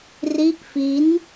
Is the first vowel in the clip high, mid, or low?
high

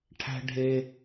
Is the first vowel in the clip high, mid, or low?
low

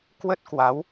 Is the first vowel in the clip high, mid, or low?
mid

